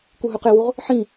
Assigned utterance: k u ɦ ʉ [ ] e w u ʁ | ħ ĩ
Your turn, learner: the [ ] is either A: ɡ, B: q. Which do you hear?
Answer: B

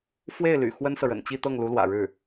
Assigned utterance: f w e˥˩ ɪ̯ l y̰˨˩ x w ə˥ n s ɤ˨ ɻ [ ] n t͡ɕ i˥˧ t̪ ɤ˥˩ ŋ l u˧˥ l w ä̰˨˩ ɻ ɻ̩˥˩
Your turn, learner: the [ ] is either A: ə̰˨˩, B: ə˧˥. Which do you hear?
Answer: A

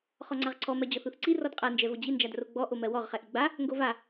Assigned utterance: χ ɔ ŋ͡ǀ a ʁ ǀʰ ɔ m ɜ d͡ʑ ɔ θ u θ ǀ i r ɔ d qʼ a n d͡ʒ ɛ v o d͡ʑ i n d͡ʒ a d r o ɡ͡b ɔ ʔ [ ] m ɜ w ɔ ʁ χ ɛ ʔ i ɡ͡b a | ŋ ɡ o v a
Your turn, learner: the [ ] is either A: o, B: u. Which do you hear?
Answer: A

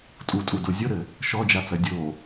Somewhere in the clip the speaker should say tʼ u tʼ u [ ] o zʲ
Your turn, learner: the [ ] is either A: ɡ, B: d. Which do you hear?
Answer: B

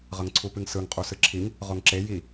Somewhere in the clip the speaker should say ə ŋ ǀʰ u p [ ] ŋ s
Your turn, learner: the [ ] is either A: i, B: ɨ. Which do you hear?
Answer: B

